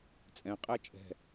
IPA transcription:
t͡sʼ ɛ̃ qʼ æ t͡ʃʼ ɛ̤

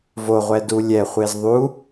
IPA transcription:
v o ʁʷ ɛ d u lʲ ɛ χʷ e z ðˤ u

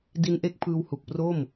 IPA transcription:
d i˦˥ n ʔ e˦˥ k̚ pʰ ɯː˧ w h u˨˩ k̚ p r o˥˩ m

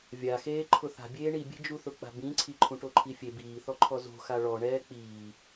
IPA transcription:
vʲ a x eː ǃʰ ʊ θ a̤ bʲ eː ɳ i bʲ e̤ d͡ʒ u θ ʊ k͡p a̤ b ĩ ǀʰ i ǃʰ ũ ʈ o ǃʰ i fʲ e b iː θ ɔ ǃʰ ɔ z o̤ x a ɭ ɔ ɳ ɛː k͡p iː

